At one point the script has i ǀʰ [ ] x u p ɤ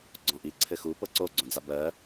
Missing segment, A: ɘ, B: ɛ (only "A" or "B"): A